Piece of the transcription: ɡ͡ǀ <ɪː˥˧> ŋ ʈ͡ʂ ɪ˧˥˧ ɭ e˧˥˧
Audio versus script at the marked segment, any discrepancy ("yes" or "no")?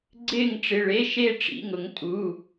no